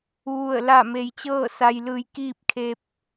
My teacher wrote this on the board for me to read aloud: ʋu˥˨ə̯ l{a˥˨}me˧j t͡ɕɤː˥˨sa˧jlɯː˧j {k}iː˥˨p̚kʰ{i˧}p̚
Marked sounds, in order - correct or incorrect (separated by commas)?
correct, correct, incorrect